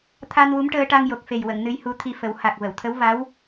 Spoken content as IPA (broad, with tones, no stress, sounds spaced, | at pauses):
t̪ʰ a˧ n w u˧˥ m ʈ əː˧ ʈ a˧ ŋ j o˨˩ k̚ f e˨˩ j w ə˨˩˨ ŋ n ɨ˧ j h u˧ t̪ʰ i˧ f ə˨˩˦ w h a˨˩ k̚ v ə˨˩˨ w t̪ʰ ə˧˥ w v a˧˥ w